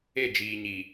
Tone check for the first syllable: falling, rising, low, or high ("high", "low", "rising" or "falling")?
falling